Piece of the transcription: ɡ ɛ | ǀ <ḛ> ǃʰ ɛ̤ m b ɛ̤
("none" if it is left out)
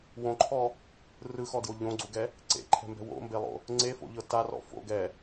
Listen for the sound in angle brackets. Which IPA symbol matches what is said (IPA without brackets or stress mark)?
ḛ